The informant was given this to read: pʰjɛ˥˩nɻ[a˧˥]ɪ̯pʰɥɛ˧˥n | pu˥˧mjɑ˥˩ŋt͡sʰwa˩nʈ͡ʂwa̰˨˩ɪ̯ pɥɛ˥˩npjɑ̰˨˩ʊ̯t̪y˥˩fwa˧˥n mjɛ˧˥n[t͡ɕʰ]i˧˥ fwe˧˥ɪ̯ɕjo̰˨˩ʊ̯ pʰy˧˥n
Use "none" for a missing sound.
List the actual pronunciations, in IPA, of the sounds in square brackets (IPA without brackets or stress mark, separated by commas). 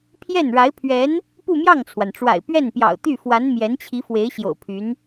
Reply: a˧˥, t͡ɕʰ